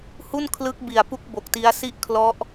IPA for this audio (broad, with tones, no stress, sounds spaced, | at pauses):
h u˥˩ n kʰ l ɯ˦˥ k̚ b i˨˩ a̯ p u˦˥ k̚ b o˨˩ k̚ t i˦˥ a̯ s i˥˩ ʔ kʰ l ɔ˦˥ ʔ